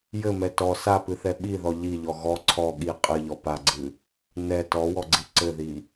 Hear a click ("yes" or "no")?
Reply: yes